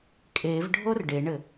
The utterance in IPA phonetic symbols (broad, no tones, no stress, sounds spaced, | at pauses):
kʼ e v ɖʱ o r ɖ e ɳ ɘ